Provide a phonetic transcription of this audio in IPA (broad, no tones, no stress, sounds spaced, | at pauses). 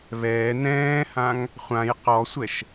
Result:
β ɛː n ɛ̃ː h ã ŋ | χʷ ã j q ɔ sʷ ɛ ʃ